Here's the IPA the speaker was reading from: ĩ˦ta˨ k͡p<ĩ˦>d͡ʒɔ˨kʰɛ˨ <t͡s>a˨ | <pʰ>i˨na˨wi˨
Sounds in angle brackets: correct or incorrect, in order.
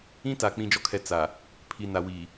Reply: incorrect, correct, correct

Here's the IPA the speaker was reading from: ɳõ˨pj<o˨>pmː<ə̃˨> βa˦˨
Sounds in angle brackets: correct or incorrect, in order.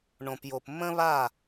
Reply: correct, incorrect

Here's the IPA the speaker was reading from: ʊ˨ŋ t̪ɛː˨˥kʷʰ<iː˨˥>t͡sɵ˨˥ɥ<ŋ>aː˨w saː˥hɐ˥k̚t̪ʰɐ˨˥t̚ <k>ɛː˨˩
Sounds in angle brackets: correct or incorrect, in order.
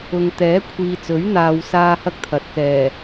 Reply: incorrect, incorrect, correct

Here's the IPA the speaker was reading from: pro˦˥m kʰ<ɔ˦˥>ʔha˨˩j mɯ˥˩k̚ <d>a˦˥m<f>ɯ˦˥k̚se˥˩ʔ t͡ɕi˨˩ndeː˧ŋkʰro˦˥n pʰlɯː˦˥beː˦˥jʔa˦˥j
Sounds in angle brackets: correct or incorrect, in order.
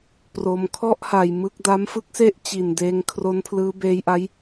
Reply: incorrect, correct, correct

